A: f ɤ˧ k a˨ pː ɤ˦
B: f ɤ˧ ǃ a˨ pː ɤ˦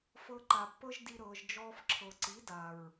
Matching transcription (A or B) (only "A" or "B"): B